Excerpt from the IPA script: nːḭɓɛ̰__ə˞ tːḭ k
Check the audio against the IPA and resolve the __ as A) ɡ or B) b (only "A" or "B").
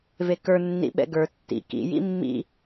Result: A